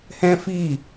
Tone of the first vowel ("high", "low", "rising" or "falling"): high